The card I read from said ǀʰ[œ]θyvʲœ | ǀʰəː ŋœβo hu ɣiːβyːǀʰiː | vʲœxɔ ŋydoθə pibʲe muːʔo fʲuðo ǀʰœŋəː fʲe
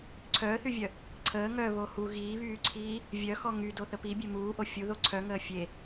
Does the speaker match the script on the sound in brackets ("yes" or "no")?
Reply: no